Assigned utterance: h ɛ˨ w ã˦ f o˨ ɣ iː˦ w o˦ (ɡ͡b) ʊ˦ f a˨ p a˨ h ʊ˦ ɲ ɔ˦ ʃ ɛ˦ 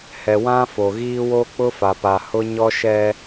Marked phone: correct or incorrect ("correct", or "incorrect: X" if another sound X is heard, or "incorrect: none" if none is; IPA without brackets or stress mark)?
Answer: incorrect: k͡p